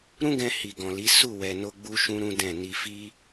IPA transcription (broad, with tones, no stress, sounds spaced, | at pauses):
ɾ ũ˦ ɡ ɛ̃˧ h i˨ ɡ ɔ̃˨ l i˨˦ s u˦˨ w ɛ˧ n o˦ ɡ͡b u˦ ʃ ũ˦ ɾ ũ˦ d ɛ̃˦˨ n i˧ f i˦